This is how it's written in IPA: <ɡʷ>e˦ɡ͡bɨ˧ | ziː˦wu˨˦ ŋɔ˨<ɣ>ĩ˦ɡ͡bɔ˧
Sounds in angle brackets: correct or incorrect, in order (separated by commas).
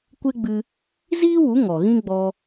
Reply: incorrect, correct